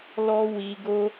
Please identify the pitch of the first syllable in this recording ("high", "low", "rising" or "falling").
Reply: high